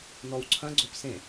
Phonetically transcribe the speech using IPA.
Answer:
nɔwǀʰɐ̃ ɡ͡ǀopsẽ

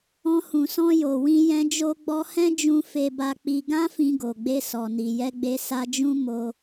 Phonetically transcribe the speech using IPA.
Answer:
ɔ̃˧ hũ˨ sɔ̃˧jo˨wĩ˧ jɛ̃˧d͡ʒo˧ɡ͡bɔ˧ hɛ̃˦d͡ʒũ˧ fe˧ba˧k͡pi˧ ɡã˦fĩ˧ɡo˨ɡ͡be˧ sɔ˨ni˨jɛ˧ɡ͡be˧ sa˦ d͡ʒũ˦ mo˧

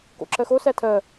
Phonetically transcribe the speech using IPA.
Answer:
ko̰ǁɜxo sætʰɜ

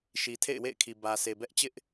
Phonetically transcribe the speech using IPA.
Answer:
ʃi˨tʰḛ˦˨ɪ̯wḛ˦˨ɪ̯kʰi˨ bä˨sʰe˨bɛ˦ʔt͡ɕɪ˦ʔ

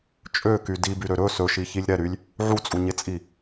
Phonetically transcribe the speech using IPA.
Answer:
t͡ʃʼøky dibyɾø ɾɵ sɵʃiçilʲ ɾɛɾylʲ | ʕut͡sʼuɲet͡sʼi

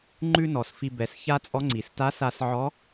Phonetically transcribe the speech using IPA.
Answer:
ŋ͡ǃʉ˥nɔ˩s fi˧bɛ˩˧s ça˥t͡sʼɔ˧˥ ŋ͡ǀi˩s ta˧˥sa˧sʕɔ˧˥

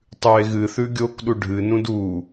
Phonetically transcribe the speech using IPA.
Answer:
tˤʉe̯ɣɨθʉ ɡʲokɗu ɖʱɨnũd u

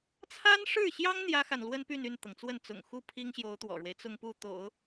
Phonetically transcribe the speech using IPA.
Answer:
t͡sʰa˥nʂɻ̩˥˩ɕjɑ˥ŋ n̪jä˥xa˨nlwə˥n py˥˧n y˥˩nt̪ɤ˩ŋt͡swə˥˩n t͡sʊ̰˨˩ŋxu˥˩ pʰi˥ŋɕjo˧˥ʊ̯ t̪wɔ̰˨˩ɻwe˦ɪ̯ t͡sʊ˥˧ŋpu˥˩t̪o̰˨˩˦ʊ̯

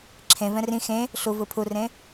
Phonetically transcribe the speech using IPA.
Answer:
ǁʰẽ vɛ̃rĩ xẽ | ɬuvɯ pʰurẽ

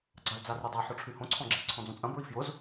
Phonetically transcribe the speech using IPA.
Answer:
ɡ͡ǀald͡zarydˤa ħoʈ͡ʂʰyhõ ǀʰɔ̃ɡ͡ǁi ǀʰɔ̃d͡zõt͡sʼɐ̃ bɹifjʊz

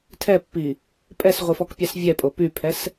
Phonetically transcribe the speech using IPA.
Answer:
tʰɛpːi | pʼɛsʁʷifɔkpʲɑs vʲɛpʼo pypʰɛs

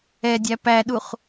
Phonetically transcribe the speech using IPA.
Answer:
ɛdʲæ pæɗuχ

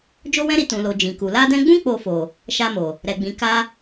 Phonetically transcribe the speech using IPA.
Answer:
d͡ʒo˦wɛ̃˦ɾi˧ tũ˨lo˨ d͡ʒĩ˨ku˨ la˧dɛ̃˧ɡ͡bũ˦ k͡po˧fo˨ | ʃa˧mo˨ | ɾɛ˨ɡ͡bĩ˨ ka˧

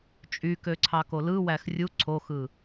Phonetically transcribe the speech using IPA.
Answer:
t͡ʃʼykø ǀʰɑkolɯwæx rʲu ǀʰoxɯ

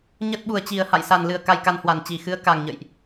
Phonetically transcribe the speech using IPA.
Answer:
ɲə˦˥t̚ɓu˨˩ə̯t͡ɕi˨˩ə̯ ha̰˧˨jsa˨˩nlɨ˨˩ə̯ ka˧jka˧nhwa˨˩n t͡ɕi˧˩xɨ˨˦ə̯ka˨˩ŋɲə̰˧˨jʔ

